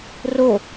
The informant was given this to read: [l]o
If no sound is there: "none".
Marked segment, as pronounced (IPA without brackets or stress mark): r